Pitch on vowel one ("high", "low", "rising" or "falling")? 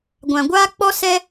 low